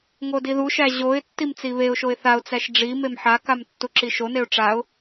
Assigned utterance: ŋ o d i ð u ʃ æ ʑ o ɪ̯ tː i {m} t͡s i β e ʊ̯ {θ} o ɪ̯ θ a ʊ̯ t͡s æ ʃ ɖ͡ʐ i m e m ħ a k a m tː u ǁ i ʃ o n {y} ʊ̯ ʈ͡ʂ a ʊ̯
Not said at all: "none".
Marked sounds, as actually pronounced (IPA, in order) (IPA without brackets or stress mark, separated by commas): m, ʃ, e